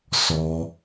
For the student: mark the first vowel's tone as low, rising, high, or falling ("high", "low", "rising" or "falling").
high